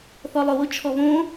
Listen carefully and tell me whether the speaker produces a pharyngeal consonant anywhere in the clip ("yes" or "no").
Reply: no